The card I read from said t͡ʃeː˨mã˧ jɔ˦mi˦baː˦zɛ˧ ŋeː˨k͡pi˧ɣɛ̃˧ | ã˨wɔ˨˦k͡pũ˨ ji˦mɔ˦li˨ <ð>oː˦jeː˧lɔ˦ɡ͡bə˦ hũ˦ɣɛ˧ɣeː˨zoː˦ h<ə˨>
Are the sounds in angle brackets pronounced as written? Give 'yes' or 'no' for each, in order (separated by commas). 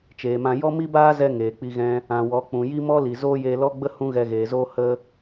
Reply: no, no